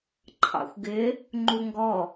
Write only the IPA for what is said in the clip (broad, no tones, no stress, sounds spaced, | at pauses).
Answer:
ǃʰ ɑ̰ xʷ ɡ ɪ | ŋ͡ǃ u ŋ ɡ ɔ